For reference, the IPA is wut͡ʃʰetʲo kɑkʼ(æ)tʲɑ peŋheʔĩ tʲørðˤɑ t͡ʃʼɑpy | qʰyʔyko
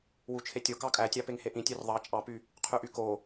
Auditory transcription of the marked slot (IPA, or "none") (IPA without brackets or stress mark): æ